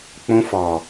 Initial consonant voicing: voiceless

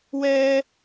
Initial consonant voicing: voiced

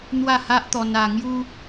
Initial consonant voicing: voiced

